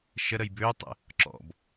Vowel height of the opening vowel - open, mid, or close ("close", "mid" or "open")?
mid